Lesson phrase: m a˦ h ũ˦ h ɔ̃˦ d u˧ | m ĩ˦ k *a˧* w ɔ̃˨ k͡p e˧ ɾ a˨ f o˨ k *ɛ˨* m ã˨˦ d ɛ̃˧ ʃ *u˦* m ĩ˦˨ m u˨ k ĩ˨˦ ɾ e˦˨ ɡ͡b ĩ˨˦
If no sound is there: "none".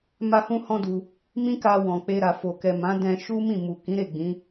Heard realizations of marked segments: a˧, ɛ˨, u˦

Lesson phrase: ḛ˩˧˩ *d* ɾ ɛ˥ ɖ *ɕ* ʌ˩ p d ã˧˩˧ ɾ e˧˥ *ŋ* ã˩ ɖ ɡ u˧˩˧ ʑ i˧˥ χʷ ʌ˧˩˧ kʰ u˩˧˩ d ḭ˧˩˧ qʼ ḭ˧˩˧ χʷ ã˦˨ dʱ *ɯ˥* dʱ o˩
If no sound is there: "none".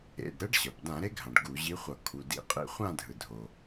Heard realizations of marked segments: d, ɕ, ɡʱ, ɯ˩

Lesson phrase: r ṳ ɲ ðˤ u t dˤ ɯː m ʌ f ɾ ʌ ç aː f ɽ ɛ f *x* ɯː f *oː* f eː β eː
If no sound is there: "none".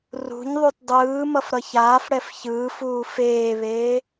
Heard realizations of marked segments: ç, uː

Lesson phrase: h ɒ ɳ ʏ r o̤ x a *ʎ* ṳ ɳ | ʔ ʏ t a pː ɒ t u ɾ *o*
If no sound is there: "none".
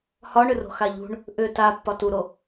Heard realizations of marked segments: ʎ, o

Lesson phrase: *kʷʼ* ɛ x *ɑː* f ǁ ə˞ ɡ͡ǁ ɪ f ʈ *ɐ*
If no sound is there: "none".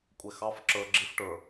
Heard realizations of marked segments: kʷʼ, ɑ, ə˞

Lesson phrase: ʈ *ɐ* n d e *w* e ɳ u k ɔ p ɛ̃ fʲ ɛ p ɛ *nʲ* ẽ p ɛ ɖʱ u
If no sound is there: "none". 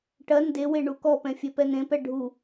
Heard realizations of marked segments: ɐ, w, n̪

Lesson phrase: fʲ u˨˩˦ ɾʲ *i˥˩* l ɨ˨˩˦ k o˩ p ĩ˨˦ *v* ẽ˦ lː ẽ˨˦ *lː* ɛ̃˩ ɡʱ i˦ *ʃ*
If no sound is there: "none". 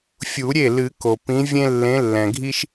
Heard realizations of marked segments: e˥˩, vʲ, lː, ʃ

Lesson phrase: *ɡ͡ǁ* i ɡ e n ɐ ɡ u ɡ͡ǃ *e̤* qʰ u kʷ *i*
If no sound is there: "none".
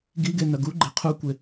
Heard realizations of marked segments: ɡ, e̤, e

